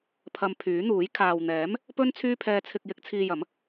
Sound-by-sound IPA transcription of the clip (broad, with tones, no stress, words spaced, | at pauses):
pʰɐ˧mpʰyː˨˥n̪uː˨˥j kʰaː˨wn̪ɛː˨˥m | pɵ˥n t͡sʰyː˥pʰɛː˧t͡sʰɪ˧k̚ jɪ˨˥k̚t͡sʰiː˧jɐ˨˥m